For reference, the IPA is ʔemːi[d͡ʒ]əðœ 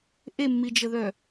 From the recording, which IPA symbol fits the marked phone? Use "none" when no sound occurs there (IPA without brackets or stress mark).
d͡ʒ